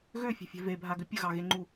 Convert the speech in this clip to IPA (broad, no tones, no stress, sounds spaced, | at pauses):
ɣ ø fʲ ɛ̤ fʲ ɛ̤ v e bʱ a ɡ ʏ pʲ ə ɣ ɑ ɣ e ŋ͡ǃ u